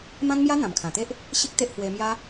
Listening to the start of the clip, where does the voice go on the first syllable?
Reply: high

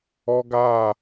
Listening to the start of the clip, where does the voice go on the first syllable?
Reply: high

